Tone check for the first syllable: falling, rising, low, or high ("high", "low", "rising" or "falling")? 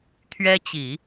high